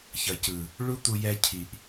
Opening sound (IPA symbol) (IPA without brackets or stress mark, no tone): ç